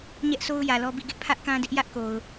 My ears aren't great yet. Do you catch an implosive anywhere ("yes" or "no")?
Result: no